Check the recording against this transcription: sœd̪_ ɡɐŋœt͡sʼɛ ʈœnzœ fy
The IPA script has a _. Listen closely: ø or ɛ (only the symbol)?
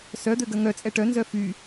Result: ø